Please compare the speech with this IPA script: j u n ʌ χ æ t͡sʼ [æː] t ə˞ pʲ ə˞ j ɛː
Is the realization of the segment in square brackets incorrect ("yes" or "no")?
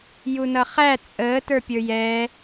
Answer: yes